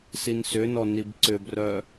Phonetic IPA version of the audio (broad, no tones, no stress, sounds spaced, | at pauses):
s i n s ʏ n ɔ n i b ǀ ʏ b r œ